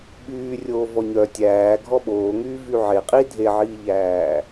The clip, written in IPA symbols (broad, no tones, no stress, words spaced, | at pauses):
ɓyːrʲoː vɔɲœ tʲæː ɡʱɔɓoːŋyː vyʕe qʼi dʱeʕiːʎæː